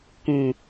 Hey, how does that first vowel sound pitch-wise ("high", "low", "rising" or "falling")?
low